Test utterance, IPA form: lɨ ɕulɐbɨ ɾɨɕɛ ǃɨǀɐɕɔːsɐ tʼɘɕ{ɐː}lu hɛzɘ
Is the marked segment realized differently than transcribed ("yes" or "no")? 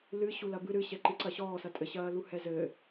no